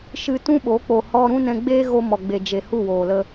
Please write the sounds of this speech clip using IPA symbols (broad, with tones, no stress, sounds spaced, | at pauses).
ʃ ɨ˧ t ũ˦ ɓ o˨˦ k͡p o˨ h ɔ˧ ɾ ũ˦ n ɛ̃˧ ɡ͡b eː˦ ɣ o˧ m ɔ˨ ɡ͡b e˨ d͡ʒ e˨ h u˦˨ w oː˨ l ə˧